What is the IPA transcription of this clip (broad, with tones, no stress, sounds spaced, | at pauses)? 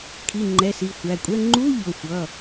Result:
kʰ i˩˧˩ ŋ͡ǃ ɛ˩˧˩ s i˩˧˩ xʷ æ˩˧˩ kʷʼ ɛ˧˥˧ ŋ͡ǃ u˧˥˧ ʎ ʊ˩˧˩ xʷ ʌ˩˧˩